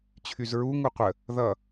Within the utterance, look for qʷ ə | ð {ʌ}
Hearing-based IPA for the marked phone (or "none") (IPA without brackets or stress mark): ʌ